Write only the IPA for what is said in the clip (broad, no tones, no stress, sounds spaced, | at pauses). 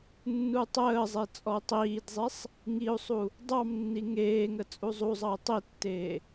nː u tˤ əː zˤ e t͡sʼ ɔ u̯ tˤ iː d zˤ i sˤ | ŋ i u̯ sˤ u | dˤ ɑ m nː i ŋ eː ŋ ə t͡sʼ u zˤ u zˤ ɑ i̯ tˤ i tː eː